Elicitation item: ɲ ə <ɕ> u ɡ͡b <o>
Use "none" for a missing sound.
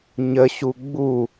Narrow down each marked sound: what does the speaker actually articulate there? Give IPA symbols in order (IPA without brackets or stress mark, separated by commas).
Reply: ɕ, u